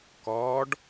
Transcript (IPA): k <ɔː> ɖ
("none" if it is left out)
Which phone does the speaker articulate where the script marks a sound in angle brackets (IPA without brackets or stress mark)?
ɔː